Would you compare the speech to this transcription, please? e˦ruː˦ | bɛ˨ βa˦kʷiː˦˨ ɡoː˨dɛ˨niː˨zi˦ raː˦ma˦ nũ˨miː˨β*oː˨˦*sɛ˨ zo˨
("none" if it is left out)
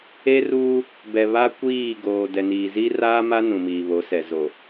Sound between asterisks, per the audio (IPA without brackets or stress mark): o˨˦